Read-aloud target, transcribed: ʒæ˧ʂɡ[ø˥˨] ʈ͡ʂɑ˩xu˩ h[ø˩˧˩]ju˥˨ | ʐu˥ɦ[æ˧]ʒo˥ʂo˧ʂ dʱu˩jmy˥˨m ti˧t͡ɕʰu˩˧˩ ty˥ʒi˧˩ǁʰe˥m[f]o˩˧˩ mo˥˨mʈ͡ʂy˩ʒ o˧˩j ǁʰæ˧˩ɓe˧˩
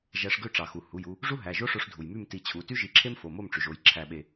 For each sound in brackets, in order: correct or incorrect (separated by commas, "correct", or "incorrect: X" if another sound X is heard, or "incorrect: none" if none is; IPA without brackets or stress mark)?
correct, incorrect: u˩˧˩, incorrect: æ˩˧˩, correct